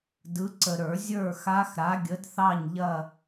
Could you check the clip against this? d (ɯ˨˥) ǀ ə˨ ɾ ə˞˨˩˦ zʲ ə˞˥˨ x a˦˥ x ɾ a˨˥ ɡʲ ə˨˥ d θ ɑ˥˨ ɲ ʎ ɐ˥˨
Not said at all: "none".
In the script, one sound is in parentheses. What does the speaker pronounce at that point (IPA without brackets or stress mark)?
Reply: ɯ˨˥